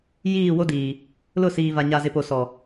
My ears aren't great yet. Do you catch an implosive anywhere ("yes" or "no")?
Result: no